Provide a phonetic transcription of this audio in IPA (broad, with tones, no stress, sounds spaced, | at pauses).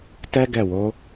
t ɛ˦ ɡ ɛ˦˨ w o˨˦